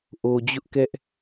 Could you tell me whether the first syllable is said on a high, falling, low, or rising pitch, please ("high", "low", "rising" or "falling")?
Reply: low